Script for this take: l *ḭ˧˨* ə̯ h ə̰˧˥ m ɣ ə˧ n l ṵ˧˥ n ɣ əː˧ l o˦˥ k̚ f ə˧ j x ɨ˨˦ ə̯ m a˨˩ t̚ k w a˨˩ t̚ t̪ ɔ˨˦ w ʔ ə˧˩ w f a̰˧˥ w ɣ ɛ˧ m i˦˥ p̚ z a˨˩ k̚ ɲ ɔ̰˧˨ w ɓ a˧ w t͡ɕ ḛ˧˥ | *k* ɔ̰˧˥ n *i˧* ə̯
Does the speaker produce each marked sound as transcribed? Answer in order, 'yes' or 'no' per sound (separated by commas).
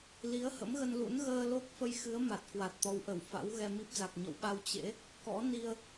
no, yes, yes